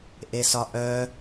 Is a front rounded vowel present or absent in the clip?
present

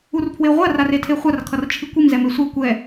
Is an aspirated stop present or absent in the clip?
present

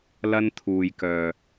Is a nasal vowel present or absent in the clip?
absent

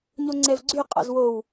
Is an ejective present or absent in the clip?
present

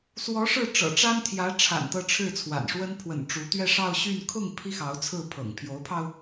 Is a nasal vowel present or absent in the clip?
absent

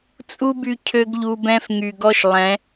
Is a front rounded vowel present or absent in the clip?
present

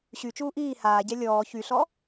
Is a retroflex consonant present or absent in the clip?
absent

